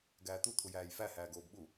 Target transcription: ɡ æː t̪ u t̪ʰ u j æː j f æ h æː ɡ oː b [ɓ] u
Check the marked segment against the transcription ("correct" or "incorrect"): correct